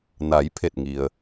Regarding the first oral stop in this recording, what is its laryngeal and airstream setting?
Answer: aspirated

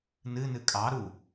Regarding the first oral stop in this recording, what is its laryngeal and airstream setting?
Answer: ejective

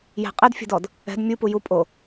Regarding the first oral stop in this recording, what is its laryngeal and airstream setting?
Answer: ejective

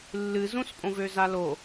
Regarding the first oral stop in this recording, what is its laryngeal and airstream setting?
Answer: ejective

